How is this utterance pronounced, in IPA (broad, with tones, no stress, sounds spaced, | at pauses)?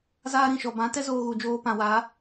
z aː˦ ɾ ĩ˦˨ ʃ ɔ˨ b ã˨˦ t ɛ˦ z oː˧ ɣ u˨ d͡ʒ oː˧ p ã˨ w a˨˦